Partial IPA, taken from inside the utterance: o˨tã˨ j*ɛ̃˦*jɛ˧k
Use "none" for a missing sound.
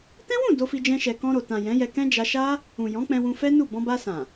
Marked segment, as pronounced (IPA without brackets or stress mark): ɛ̃˨˦